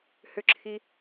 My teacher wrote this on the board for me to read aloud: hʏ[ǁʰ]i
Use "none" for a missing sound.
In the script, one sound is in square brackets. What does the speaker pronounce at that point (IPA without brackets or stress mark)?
ǁʰ